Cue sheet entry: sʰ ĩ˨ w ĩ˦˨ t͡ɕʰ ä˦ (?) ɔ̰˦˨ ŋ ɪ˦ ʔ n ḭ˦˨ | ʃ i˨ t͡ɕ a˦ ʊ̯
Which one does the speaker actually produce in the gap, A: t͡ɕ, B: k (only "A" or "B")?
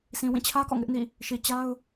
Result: B